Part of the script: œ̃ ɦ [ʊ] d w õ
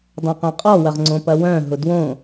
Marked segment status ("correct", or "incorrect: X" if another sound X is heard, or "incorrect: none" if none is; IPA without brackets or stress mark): correct